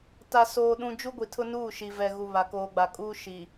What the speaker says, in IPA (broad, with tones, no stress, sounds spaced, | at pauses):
t a˨ s oː˨ ɗ ũ˨ d͡ʒ u˦ ɡʷ i˨ tʰ ʊ˦ n uː˦˨ ʃ i˨ v ɛ˨ ɣ u˨ β a˨ k oː˨ ɡ͡b a˨ kʼ uː˦ ʃ i˨